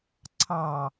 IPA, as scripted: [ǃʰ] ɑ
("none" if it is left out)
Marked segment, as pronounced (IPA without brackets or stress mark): ǀʰ